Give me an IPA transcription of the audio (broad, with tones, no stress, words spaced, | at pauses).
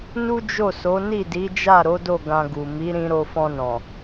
nu˦d͡ʒo˦˨so˨˦ ni˦˨di˨˦d͡ʒa˦˨ ɾo˨˦do˦˨ ɡã˧ɡu˨ mi˨˦ɾĩ˧ ɾo˧fɔ̃˧nɔ̃˨